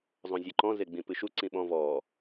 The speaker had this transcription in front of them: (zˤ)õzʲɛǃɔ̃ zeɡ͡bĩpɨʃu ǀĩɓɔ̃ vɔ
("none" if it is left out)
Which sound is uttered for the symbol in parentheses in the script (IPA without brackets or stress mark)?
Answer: zˤ